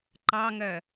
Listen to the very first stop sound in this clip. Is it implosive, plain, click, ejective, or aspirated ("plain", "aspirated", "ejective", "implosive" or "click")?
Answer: click